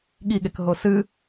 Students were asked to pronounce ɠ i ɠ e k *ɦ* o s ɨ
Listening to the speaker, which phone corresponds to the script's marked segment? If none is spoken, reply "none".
ɦ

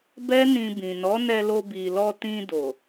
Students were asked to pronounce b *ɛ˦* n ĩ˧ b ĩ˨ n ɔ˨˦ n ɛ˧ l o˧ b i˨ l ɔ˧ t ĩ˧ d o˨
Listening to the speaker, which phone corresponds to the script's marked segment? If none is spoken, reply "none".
ɛ˦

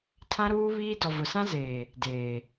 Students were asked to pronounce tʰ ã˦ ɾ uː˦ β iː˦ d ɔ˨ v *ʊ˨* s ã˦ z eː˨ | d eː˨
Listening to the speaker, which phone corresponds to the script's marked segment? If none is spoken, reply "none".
ʊ˨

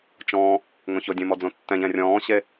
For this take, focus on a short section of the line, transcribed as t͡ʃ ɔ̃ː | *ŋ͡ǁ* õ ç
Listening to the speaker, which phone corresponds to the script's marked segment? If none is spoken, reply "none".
ŋ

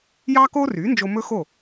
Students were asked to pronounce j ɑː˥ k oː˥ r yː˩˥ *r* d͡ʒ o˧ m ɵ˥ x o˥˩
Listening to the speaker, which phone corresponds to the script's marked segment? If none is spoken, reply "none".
n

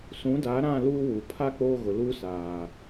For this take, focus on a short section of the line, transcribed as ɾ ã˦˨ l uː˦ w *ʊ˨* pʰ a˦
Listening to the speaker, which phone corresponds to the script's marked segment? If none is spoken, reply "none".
u˨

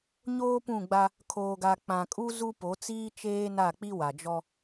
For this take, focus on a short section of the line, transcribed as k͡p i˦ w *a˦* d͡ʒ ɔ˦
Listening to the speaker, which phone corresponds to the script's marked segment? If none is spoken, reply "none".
a˨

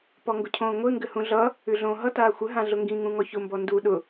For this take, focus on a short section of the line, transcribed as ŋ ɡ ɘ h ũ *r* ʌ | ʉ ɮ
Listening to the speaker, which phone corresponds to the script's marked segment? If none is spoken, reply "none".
ɮ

